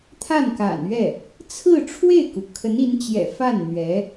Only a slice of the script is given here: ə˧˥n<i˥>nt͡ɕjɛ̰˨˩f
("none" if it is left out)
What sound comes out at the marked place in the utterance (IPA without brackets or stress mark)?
i˧˥